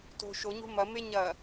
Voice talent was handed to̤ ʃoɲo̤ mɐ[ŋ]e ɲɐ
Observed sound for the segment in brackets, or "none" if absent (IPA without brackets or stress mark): m